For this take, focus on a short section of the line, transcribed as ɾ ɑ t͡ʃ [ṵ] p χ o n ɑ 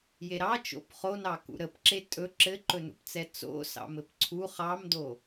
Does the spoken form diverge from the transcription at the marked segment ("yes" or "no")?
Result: yes